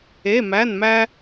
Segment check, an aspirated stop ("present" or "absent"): absent